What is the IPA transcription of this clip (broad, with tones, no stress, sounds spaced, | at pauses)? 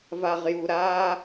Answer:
v a˨ ʁ j u˨ ɾ aː˦